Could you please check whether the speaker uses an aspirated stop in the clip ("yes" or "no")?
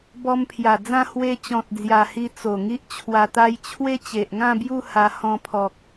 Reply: yes